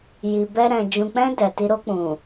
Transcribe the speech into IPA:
ji˨bɛ˧ ɾɛ̃˨ d͡ʒũ˨k͡pɛ̃˧ dɛ˨ti˧ ɾo˧k͡pũ˨

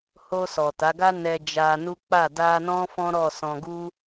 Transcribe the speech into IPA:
ho˧sɔ˨ta˨˦ɡa˦ nɛ˧d͡ʒa˧nu˦ k͡pa˦˨ da˧nɔ̃˦ fɔ̃˦ɾɔ˦˨ sɔ̃˧ɡu˦

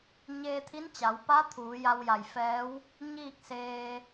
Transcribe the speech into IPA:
ɲeː˧t̪ʰi˧˥nt͡ɕa˩˧wpa˧˥ t̪ʰuː˩˧ja˧wja˧˩jfɛː˧˥w | ɲiː˥˨k̚seː˧

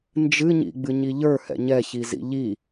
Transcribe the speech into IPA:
nd͡ʒɨɲḭɡ͡bɨ ɲiʎə˞ hɛ̰ɲɛçizḭ ʎi

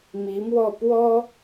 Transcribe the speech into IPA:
mi˧˥mwɔ˥˩pwɔ˥

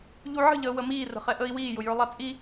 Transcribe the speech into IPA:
ʎuʕə̤ʎəː wəmiːrə̤χɛ ʔəːi̯wiːjʊ jə˞lˠat͡sʼi

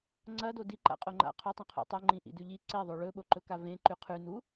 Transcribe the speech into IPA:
ŋ͡ǀɐ dodi ǃa̰qʼoŋ͡ǃa̰ qʰɵtˤẽqʰo̰ tˤoŋ͡ǃĩ ʔḭdʉʎi ǀeðˤo ɭɵɓoǃɵka vẽ ǃʉqʰʉ nu

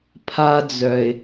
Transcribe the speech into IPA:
pʰa˦d͡zœ˨ɪ̯

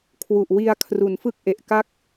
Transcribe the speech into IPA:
kʰwu˨˩ʔ wi˧a̯ kʰru˩˦nfɯ˥˩k̚ʔe˨˩ʔ ka˥˩k̚

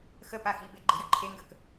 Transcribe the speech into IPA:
xə paxibe ɡ͡ǃəjəǃʰeŋɡək

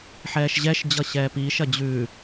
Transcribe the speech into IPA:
ħɛːʃʑɛʃ d͡ʑʌɕɛːpiːʃ ɐd͡ʑʉ

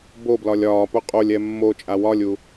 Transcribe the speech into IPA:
boblɒlʲ ɒːpo qʼolʲ ɛmːot͡ʃʼa wɒlʲu

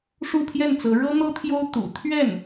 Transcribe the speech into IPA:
ʂu˥˧pʰjɛ˥˩nt͡sɤ˧˥ ɻɤ˥n̪ɤ˥t̪ʰjo˥ʊ̯ t̪ṵ˨˩ t̪ʰɥɛ˥˩n

